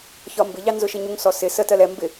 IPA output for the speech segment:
ç ɒ m b ɪ ʎ ɑ n z ʊ ʃ ɪ ɲ u ŋ s ɔ s ɪ s ə t ɜ l ɛ m b ɪ

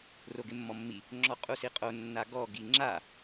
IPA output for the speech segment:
r o ɡ ɪ mː ɔ mː i | ŋ͡ǁ ɔ qʼ u s i qʼ o nː a ɡ ɔ ɡ i ŋ͡ǁ a

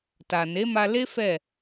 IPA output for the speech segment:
t a˨ n e˨˦ m a˧ l e˦ f ɛ˦˨

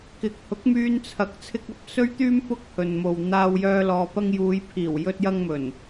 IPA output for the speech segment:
k ɪ˨˥ k̚ h ʊ˨˥ k̚ m yː˧ n t͡sʰ ɐ˨˥ k̚ t͡sʰ ɪ˧ k̚ ɐ˧ p̚ s ɵ˥ ɥ t̪ yː˥ m p ʊ˥ k̚ h ɵ˨ n m o˨ w n̪ aː˧ w j œː˧ l ɔː˨ p ɐ˧ ŋ j uː˨˧ j pʰ iː˨˩ w j ɵ˧ t̚ j ɐ˧ ŋ m ɵ˨˩ n

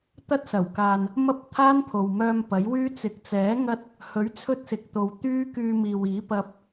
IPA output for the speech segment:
t̪ ɐ˥ t̚ s ɐ˨˩ w k aː˨ n | m ɐ˥ p̚ t̪ʰ aː˥ n pʰ o˨ w m œː˧ m p ɐ˨˥ j w yː˥ t͡s ɪ˨ k̚ t͡s ɛː˨˥ ŋ ɐ˥ t̚ | h ɵ˨˥ ɥ t͡sʰ ɵ˥ t̚ s ɪ˨ k̚ t̪ o˨ w t̪ yː˥ k yː˧ m iː˨ w iː˨˥ p ɐ˧ p̚

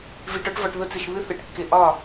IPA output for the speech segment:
v i˧ ʈ ɒ˦ ʈ v ɒ˧ ʈ ð ʊ˦ t͡s ɪ˧ ʃ β ɨ˦ θ ɨ˨ ʈ kː ɪ˧ ʔ ɒ˦˨

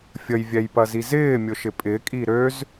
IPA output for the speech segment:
fʲ ə j vʲ ɛ j p ɐ z i z ɪː mʲ ʊ ʃ ɪ pʼ ɪ kʼ i ɾ ø z

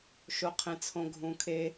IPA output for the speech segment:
ʃ o˧ qʰ ẽ˧ t͡sʰ õ˧ ɡʱ ũ˧ kʰ e˦

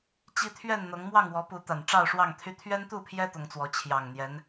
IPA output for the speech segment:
t͡ɕ i˦ t̪ʰ ɥ ɛ˥˨ n n̪ ɤ˨˦ ŋ m w ɑ˥˨ ŋ w ɔ˨˦ p u˨˦ t̪ a˨˩ n ʈ͡ʂ ɑ˥˨ ʊ̯ ʂ w ɑ˥˨ ŋ t̪ʰ y˦ t̪ʰ ɥ ɛ˦ n t̪ u˥˨ pʰ j ɛ˦ t̪ ʊ˨˦ ŋ t͡s w ɔ˨˦ t͡ɕʰ j ɑ˨˩ ŋ n̪ j ɛ˨˦ n

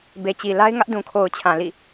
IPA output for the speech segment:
b e˨ t͡ɕ i˨ l a˦ ɪ̯ ŋ ä˦ ʔ d ũ˨ kʰ o˨ ʊ̯ t͡ɕʰ ã˨ l ḭ˦˨

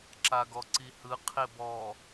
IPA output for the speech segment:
ǁ a ɡ ɔ ǀ i h ɯ qʰ e b ɔ

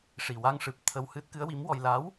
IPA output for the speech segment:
ʂ i˨˩ w a˧ ŋ ʂ ɨ˨˩ p̚ t̪ʰ ə˧ w h ɨ˦˥ t̚ k ɨ˧˥ ə̯ w i˧˥ m w ɔ˧ j l a˧˥ w

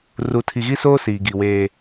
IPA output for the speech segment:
r u˨ tʰ i˨ ɣ i˦ s oː˦ s iː˨ ɡ i˨ w eː˦

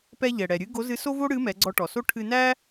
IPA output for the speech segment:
p ɛ˧ ʎ ɛ˩ ɽ ɛ˩ ɾʲ ɨ˧˥ ɡ o˧˥ z ɨ˧˥ s o˥ v o˥ ɽ ɨ˧˥ m ɛ˩˧ ɡ͡ǀ ɔ˧ ʈ ɔ˩ s o˥ ʈʰ ɨ˧ n æ˥

